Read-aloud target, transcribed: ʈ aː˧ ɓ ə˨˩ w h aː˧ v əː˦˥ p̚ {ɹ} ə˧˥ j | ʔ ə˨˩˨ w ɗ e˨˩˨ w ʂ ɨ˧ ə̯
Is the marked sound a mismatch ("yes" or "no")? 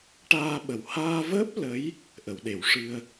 yes